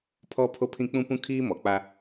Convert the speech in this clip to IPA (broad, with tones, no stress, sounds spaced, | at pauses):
pʰ ɔ˦ pʰ o˦ pʰ ĩ˦ k͡p ũ˦ p ũ˦ kʰ iː˦ m ɔ˨ k͡p a˦